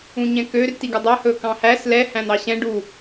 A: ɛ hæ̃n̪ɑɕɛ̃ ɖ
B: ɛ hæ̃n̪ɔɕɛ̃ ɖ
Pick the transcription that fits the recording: A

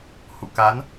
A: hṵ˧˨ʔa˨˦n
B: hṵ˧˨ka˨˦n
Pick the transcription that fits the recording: B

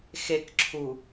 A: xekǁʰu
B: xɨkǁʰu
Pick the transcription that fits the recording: A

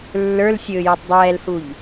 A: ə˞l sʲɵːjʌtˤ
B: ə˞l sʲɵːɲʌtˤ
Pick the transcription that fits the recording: A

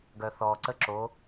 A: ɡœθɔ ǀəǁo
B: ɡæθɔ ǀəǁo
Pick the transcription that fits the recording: A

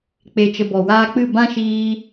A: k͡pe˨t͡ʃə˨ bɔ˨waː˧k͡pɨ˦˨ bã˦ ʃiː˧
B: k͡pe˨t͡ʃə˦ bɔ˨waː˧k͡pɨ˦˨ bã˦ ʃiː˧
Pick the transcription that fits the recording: A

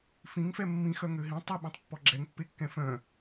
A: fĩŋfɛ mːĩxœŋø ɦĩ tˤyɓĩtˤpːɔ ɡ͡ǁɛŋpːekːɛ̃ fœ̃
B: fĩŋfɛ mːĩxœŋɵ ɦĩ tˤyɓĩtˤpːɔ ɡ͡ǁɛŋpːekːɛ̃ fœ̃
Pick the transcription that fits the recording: A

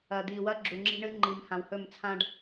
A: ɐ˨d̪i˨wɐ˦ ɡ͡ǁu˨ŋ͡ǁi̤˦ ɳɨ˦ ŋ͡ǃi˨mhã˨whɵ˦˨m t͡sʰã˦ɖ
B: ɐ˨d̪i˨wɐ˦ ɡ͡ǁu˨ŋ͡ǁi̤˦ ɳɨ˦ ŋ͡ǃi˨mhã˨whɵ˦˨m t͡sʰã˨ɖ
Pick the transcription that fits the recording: A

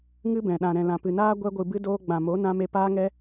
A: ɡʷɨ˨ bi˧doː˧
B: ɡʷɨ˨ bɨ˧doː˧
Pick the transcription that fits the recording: B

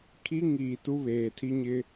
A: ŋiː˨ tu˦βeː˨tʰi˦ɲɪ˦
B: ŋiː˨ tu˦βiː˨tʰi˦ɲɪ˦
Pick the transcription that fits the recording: A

